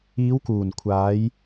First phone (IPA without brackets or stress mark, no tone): iː